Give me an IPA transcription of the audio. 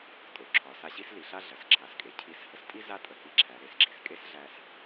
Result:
tʼo˩ǁʰɒ˩˧sa˧ ɕi˥sli˩˧ɬa˥ ɮɐ˩s ǁʰa˩˧skʼe˩ cʰi˧s hə˧stʼi˥ za˥tʼə˩˧hi˧ǁʰæ˩˧ ɾe˩˧s ɡ͡ǁi˩skʼe˥sɮæ˧s

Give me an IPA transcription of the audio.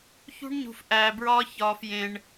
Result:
çṳ˥ɳɲṳ˧f ʔæː˧bɹɒː˥ çɒː˧fjẽ˧ɳ

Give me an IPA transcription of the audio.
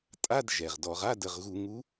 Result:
tʼa˧˥˧d ʒɛ˩ʁdɔ˧˩˧ʁ a˧˥˧də˩˧˩ʁɣu˧˩˧ ŋu˨˦

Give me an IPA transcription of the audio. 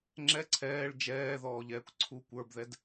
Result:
ŋ͡ǁɛ ǀʰɛːɭ d͡ʒɛːðɔːʎɛːkʷ ǀʰukʷ ə˞bðɛd

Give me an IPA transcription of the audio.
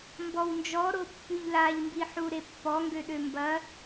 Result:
mbɔwnd͡ʒɔ ɾopːyʎlaʎ mbiħuɾepːɔ ŋɡøɗømbɐ

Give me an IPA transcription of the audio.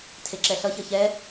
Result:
tʰeǁɛɬʌçʌ çɛ

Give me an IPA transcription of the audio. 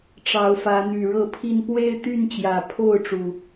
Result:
ʈ͡ʂɑ˨˦ʊ̯fä˨˦n̪y˨˩ ɻɤ˥˨pʰi˥˨n pwe˦ɪ̯t̪y˥˨n t͡ɕjä˨˩pʰo˥˨ʊ̯ʈ͡ʂu˩

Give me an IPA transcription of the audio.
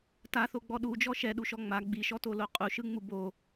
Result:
taθoɡ͡bɔ ɗud͡ʒɔ ʃɛɗuʃɔ ŋ͡ma ɡ͡biʃɔtolo qʼuʃɯŋ͡mu bo

